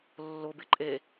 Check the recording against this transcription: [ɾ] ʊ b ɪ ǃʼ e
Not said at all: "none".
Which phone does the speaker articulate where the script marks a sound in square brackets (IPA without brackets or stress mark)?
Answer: lː